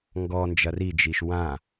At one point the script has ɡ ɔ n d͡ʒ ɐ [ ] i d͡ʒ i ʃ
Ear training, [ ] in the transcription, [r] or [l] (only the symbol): r